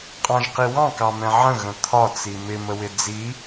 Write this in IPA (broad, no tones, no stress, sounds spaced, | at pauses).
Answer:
qʼ ɑ̃ ʒ q i w ɑ̃ k ɑ m ɛ̃ ʕ ə̃ ɣ ə̃ t̪ʰ ɒ t͡s i m ɪ m ə w ɪ d͡z i